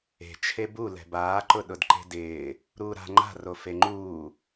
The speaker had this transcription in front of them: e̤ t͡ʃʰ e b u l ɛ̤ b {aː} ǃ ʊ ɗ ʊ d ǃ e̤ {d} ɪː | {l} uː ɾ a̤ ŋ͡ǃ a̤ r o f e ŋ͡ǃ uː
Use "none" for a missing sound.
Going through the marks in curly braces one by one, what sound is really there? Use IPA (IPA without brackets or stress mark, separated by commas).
aː, d, ɾ